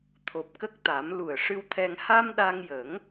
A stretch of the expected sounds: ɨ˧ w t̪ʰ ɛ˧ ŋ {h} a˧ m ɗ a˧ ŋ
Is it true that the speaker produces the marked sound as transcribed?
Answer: yes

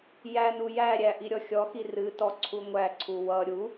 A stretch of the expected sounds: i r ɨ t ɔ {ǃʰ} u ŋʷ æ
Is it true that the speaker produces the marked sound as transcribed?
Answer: no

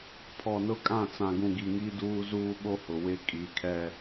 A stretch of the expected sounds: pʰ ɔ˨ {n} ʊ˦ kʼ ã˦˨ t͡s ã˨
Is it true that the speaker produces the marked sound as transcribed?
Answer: yes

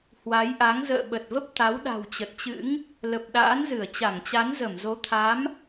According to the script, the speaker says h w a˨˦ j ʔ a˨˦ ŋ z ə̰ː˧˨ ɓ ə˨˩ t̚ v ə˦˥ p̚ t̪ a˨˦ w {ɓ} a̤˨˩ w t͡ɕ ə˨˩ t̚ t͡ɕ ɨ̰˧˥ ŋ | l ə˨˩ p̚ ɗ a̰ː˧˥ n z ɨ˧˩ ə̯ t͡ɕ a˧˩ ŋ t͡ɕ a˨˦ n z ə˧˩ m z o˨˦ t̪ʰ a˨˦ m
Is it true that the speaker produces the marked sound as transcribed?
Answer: no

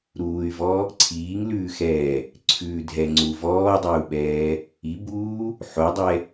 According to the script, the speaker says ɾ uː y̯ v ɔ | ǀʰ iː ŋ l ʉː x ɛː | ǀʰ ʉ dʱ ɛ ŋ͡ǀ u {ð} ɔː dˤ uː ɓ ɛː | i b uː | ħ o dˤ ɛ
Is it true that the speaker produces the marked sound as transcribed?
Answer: no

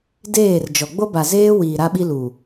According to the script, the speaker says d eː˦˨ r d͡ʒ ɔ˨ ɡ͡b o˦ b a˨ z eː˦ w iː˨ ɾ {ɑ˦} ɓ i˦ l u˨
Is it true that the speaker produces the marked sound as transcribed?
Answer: no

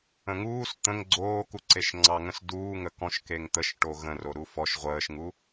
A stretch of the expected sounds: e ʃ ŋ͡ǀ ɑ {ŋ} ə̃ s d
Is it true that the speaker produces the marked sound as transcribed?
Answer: yes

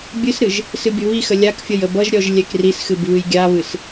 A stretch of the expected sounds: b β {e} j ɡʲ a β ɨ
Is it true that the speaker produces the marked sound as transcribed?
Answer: no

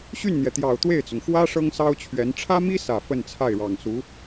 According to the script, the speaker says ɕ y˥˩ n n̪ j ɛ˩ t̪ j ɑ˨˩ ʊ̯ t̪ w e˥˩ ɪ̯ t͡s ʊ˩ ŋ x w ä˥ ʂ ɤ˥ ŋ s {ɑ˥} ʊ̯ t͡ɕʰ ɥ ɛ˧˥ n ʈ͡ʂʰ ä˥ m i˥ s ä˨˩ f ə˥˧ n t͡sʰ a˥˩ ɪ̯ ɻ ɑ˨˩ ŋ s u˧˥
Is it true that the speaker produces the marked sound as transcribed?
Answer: yes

